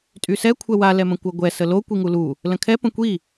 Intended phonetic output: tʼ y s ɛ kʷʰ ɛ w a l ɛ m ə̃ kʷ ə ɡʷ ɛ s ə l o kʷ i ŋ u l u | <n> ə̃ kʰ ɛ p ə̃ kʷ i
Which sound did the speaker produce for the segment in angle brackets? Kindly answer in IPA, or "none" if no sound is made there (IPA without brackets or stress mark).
l